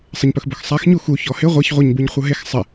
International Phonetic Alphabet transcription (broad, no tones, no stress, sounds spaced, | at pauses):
sˤ ɪ ɲ p ɵ x b ɵ x sˤ a x ɲ u x u ç ɔ h ɪ ʁʷ a ç ʁʷ a ɲ b u ɲ χʷ ʌ ɦ e x sˤ ɪ